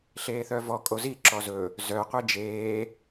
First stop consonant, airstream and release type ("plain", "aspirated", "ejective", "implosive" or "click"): ejective